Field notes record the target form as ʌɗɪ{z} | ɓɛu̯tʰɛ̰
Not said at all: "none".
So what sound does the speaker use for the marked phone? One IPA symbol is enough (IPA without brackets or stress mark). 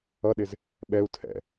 z